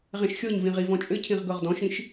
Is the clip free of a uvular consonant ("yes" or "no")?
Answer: no